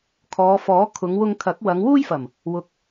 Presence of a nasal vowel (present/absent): absent